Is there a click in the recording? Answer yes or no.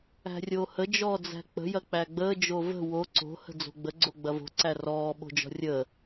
yes